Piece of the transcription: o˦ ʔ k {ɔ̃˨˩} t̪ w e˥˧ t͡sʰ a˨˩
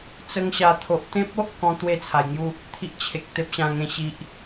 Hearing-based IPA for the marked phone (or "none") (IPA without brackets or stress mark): ɔ̃˦